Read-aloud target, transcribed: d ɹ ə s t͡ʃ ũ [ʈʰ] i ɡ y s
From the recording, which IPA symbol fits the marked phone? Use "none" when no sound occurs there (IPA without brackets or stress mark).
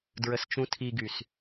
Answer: tʰ